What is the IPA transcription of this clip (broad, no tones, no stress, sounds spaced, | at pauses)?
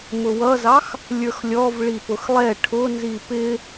m ʊ w ʌ z ɑ x | lʲ ə˞ x lʲ ɔ v ɭ i p ʊ x lˠ ɛ ʈʰ ʊ n z i p ɪ